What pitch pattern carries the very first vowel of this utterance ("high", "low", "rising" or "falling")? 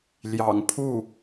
low